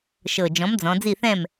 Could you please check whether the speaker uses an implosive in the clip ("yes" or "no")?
no